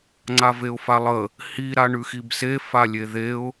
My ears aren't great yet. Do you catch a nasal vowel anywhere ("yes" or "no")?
no